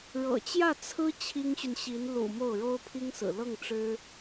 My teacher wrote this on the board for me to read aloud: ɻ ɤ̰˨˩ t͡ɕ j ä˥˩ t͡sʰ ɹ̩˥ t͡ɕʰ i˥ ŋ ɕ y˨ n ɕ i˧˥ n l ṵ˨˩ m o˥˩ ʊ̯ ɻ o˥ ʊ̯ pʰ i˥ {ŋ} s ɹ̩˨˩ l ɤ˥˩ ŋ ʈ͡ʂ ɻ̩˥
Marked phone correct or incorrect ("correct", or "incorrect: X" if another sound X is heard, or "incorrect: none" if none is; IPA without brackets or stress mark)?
correct